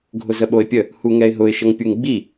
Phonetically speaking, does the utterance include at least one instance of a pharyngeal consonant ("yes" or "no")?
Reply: no